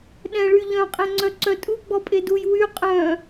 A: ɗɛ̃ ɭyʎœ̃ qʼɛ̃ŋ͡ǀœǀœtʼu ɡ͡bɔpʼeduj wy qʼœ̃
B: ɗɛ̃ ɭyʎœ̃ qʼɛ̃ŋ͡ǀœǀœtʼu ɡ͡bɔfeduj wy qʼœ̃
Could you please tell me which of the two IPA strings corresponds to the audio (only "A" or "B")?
A